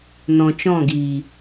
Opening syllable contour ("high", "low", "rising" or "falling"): low